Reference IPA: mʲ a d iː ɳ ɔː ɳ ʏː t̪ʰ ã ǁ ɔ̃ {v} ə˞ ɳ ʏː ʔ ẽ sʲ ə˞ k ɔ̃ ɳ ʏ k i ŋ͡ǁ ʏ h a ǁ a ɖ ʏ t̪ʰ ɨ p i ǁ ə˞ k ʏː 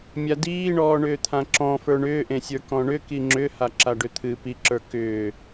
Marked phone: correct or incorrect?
incorrect